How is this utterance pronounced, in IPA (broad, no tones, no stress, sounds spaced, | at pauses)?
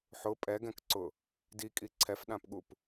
ħ ʊ pʼ ɛ ɡ ɛ̃ k ǀ ʊ | d i kʼ i ǀʰ ɛ f ɗ ã p ɠ u p